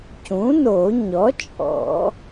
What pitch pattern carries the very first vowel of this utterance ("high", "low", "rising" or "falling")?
rising